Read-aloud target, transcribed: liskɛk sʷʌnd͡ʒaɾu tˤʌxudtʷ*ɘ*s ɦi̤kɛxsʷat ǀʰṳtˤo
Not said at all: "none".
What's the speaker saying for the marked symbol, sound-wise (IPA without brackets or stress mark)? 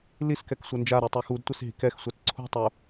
e